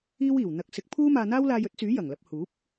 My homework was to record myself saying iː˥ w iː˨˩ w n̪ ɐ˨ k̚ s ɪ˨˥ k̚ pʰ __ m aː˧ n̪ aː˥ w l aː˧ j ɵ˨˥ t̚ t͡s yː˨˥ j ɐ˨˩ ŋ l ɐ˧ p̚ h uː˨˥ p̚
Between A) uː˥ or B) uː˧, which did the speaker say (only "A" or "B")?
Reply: A